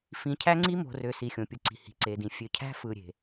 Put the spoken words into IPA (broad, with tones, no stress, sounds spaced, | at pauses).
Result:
f ĩ˨ cʰ æ˦ ŋ͡ǀ i˦ m o̤˨ r ø˨ s i˨ xʲ õ˨ pʲ ɯ˨ ǀ i̤˨ h i̤˨ ǀ e˨ d ĩ˨ fʲ ø˨ cʰ æ̤˦ f ɯ˨ ɾʲ e̤˨